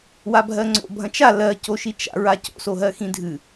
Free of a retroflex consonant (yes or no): yes